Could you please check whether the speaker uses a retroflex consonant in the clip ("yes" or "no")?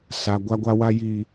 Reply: no